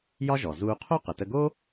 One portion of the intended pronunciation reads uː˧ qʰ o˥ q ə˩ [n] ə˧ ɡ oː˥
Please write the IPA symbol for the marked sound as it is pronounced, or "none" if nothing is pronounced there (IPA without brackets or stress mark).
t